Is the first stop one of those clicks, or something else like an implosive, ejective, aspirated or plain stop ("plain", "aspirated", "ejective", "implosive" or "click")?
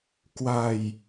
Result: plain